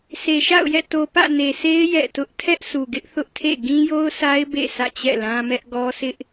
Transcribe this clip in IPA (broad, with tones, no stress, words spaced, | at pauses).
se˨ʃa̰˦˨ʊ̯jɛ̰˦˨ to˨pä̰˦˨ ne˨sʰe˦ɪ̯ jɛ̰˦˨tʊ˦ʔ tʰɛ˦ʔsu˨ɡɪ˦ʔ θʊ˦ʔtʰḛ˦˨ ɡĩ˦jo˦ʊ̯sa˦ɪ̯ bḛ˦˨ sʰä̰˦˨t͡ɕɛ̰˦˨lã˦mɛ˦ʔ ɡɔ˦sɪ˦ʔ